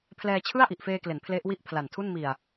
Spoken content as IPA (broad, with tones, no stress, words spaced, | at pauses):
pʰlɛː˧t͡ɕʰɯ˥˩a̯ ʔi˨˩ʔfeː˧kle˩˦n pʰle˦˥ʔwi˥˩ʔpʰla˨˩ntʰu˥˩n mi˨˩a̯